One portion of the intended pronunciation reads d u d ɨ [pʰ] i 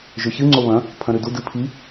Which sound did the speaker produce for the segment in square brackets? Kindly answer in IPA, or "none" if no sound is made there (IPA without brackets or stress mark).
pʰ